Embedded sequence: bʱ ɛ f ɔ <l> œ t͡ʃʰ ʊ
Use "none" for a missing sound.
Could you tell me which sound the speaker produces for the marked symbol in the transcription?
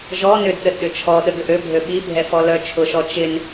l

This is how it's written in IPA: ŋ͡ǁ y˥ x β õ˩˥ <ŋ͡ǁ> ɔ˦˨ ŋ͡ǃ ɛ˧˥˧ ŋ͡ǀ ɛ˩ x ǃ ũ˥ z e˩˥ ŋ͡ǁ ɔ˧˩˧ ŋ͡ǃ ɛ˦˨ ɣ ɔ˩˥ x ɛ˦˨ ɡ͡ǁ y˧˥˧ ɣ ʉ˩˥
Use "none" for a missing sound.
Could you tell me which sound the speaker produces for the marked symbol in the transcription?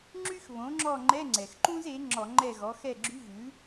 ŋ͡ǁ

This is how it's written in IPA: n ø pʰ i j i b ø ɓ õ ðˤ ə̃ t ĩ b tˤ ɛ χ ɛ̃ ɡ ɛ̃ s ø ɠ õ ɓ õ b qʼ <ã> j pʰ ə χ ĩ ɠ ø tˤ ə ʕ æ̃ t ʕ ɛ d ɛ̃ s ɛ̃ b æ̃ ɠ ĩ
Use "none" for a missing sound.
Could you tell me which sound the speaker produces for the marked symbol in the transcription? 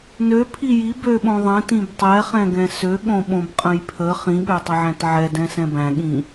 ə̃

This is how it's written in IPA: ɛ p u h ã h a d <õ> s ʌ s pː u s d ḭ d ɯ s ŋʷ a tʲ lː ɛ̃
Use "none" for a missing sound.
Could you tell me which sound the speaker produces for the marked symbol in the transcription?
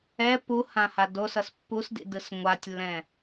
o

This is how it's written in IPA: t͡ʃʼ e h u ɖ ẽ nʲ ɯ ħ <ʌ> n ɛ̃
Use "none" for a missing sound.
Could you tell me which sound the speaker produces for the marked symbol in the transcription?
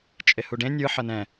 ʌ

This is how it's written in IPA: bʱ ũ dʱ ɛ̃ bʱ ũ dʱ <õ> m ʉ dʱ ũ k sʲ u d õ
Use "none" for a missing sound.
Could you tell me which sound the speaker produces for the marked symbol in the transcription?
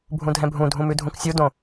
ũ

